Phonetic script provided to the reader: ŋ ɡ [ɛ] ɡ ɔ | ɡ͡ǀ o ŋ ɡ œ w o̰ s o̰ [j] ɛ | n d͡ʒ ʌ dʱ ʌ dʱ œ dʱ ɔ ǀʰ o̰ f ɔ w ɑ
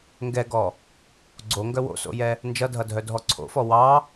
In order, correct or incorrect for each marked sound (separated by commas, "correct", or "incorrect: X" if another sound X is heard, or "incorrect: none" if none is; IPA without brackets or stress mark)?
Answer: correct, correct